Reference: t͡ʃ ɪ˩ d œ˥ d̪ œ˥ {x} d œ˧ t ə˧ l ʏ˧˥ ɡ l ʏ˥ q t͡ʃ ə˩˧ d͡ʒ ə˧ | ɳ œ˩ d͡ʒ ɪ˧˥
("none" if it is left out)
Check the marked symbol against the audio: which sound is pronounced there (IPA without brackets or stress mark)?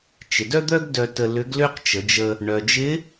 ɡ